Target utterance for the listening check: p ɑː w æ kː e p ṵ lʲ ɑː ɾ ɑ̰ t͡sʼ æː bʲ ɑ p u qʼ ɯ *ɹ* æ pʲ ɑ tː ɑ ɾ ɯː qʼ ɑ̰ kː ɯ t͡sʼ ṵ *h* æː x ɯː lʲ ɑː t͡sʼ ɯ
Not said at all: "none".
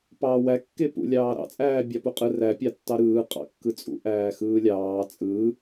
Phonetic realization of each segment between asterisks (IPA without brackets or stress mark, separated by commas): r, ʔ